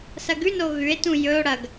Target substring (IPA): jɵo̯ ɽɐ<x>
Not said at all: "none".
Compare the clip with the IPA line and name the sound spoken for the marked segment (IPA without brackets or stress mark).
ɡ